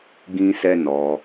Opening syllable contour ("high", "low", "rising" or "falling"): high